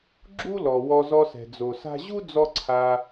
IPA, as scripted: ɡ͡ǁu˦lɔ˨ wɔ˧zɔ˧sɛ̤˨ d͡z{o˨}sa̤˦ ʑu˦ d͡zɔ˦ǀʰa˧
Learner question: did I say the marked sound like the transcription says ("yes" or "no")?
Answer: yes